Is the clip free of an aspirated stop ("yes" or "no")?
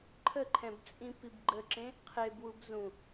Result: no